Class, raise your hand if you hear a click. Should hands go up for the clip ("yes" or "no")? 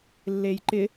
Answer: yes